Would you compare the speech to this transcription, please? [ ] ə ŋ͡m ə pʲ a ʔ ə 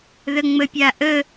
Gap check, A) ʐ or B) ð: B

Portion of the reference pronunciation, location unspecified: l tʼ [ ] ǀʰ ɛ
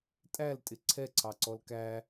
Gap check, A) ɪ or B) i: A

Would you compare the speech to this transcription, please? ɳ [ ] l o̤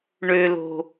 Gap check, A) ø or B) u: A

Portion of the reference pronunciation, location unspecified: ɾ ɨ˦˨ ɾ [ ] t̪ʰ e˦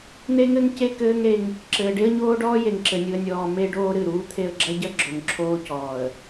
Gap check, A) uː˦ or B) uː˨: A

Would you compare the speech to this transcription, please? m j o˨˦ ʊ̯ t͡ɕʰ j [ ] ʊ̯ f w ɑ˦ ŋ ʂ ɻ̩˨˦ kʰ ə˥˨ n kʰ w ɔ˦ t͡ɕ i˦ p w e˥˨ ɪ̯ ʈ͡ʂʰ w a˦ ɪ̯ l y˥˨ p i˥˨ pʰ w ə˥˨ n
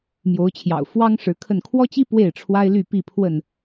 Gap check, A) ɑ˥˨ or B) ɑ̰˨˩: B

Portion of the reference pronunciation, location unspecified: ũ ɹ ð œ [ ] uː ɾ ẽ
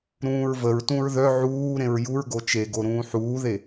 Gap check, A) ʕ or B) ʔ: A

